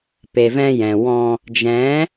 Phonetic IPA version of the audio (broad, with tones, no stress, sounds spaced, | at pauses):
p e˨ v ɛ̃˧ j ɛ̃˨ w ɔ̃˧ | d͡ʒ ɛ̃˨˦